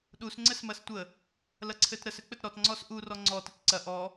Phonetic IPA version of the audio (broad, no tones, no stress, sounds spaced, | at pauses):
ɗ u s ŋ͡ǀ ɘ s m ɐ s tʷ ə | l ɐ ǀʰ ɘ t ɾ ə s ɘ k͡p ɘ t ɾ ɔ t ŋ͡ǀ ɔ s ʔ u r ɔ ŋ͡ǀ ɔ t ɘ t ǀ ɐ ʔ ɔ